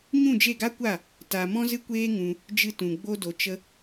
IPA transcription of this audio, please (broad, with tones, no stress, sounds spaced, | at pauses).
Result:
ɲ ũ˦˨ d͡ʒ e˦˨ ɡ a˦ kʷ a˦˨ | t a˧ m ɔ̃˦ z ɨ˦ kʷ eː˦ ŋ ũ˧ | d͡ʒ ɨ˧ t ũ˨ ɡ͡b o˦ d o˧ t͡ʃ ə˧